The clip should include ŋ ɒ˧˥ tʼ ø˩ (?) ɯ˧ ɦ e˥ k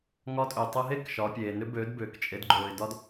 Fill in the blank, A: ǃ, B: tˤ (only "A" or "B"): B